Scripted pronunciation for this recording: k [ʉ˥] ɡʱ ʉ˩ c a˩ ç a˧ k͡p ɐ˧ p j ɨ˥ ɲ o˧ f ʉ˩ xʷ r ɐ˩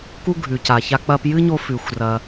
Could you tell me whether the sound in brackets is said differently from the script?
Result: yes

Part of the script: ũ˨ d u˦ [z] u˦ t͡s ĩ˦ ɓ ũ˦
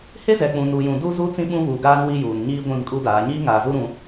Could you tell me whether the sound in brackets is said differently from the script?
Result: no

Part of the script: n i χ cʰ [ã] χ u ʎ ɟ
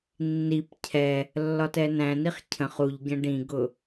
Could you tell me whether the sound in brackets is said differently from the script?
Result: yes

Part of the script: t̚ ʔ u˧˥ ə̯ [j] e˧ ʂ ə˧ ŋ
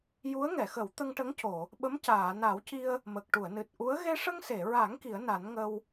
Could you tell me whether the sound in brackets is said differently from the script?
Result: yes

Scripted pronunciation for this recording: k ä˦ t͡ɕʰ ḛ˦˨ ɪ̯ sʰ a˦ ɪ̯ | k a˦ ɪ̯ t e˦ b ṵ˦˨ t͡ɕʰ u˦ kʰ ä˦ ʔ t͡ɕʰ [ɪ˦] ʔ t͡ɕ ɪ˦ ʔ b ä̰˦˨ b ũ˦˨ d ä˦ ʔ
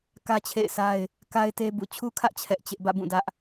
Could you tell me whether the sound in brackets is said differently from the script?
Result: yes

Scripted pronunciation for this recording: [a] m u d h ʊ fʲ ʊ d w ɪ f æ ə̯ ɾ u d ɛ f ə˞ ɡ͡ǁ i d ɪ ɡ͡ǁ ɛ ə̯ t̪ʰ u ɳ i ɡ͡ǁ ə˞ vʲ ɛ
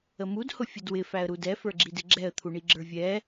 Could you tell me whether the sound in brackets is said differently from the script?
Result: yes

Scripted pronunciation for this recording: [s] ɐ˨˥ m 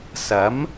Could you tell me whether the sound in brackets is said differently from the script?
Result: no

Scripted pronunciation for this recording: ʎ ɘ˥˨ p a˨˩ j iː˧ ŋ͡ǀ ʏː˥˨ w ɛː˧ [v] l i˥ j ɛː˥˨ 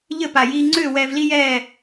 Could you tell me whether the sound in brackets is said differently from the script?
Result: no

